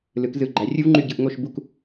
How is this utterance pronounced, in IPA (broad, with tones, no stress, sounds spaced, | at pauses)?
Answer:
l ɯ˩˧ k z ɯ˨˩ ɡ͡ǃ æ˩˧ rʲ u˥ v ŋ͡ǃ y˦˨ ɟ ɯ˦˨ ʔ ŋ o˦˨ ʃ b u˦˨ k